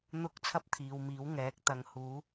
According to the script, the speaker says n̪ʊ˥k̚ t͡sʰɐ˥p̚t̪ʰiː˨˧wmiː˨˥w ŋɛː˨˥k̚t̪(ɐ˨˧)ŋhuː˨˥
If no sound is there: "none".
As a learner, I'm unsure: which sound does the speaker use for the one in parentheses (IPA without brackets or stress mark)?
ɐ˨˧